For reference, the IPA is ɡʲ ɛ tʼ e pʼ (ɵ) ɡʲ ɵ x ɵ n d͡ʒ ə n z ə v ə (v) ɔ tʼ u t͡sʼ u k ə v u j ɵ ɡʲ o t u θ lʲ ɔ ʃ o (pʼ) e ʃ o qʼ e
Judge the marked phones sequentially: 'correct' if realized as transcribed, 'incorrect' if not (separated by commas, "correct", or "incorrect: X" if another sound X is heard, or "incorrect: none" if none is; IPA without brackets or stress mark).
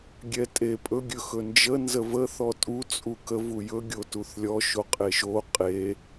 correct, incorrect: θ, incorrect: qʼ